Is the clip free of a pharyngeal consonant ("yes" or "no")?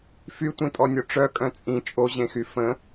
yes